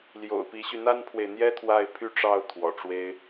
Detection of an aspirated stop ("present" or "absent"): present